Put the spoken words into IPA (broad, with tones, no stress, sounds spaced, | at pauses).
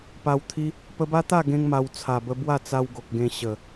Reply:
p a˧ w t̪ʰ i˦ | p ə˧ b a˦ t̪ a˥˧ ɡ ẽ˧ ŋ m a˧ w t͡sʰ a˨˩ b ə˧ b w a˥˧ t͡s a˧ w ɡ o˨ k̚ ɡ ẽ˧ ɕ ə˨˩